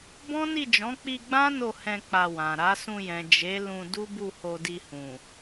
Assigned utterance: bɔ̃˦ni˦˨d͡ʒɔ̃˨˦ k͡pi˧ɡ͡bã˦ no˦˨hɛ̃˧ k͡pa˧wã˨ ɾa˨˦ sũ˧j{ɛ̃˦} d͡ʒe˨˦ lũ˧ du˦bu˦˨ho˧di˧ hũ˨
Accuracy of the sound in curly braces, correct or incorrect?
incorrect